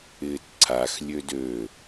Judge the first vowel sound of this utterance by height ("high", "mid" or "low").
high